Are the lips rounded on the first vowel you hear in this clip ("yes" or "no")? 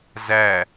no